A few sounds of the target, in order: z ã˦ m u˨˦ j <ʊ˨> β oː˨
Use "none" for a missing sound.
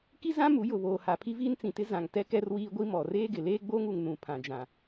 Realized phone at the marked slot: ʊ˨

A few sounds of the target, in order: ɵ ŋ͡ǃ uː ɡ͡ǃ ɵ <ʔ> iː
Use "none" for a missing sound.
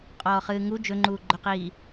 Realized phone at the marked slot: q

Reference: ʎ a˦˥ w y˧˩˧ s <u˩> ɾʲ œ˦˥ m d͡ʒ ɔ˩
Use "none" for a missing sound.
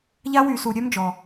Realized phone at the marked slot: u˩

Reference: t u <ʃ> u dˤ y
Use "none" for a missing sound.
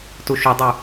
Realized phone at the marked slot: ʃ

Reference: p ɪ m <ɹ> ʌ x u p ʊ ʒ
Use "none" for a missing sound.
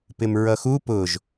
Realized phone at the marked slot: ɹ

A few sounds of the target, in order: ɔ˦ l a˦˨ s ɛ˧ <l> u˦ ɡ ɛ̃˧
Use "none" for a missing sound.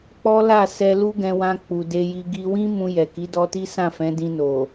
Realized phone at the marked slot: l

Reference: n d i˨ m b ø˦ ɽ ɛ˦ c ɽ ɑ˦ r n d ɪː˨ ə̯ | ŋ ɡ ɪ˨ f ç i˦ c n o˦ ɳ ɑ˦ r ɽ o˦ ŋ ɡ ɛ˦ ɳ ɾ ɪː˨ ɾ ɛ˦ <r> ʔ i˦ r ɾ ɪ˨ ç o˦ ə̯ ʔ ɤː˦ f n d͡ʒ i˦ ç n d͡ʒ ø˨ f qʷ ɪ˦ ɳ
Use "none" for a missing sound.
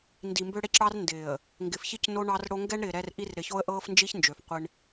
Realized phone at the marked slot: r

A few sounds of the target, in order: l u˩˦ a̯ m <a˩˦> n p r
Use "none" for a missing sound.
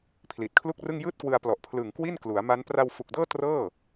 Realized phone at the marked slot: a˦˥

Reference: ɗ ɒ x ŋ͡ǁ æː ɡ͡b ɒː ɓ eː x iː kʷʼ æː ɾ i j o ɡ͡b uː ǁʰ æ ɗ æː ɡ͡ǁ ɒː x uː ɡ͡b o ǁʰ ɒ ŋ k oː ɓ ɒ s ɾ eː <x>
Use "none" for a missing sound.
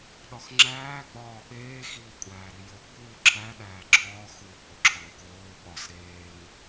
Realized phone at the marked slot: ŋ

